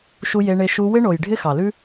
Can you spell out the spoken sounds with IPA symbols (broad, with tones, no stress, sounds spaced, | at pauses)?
ʃ u˧ j e˧ ɳ e˧ ʃ u˧ w ɪ˦ ɳ o˨ j ɖʱ ɪ˦ x ɑ˨ l ʉ˦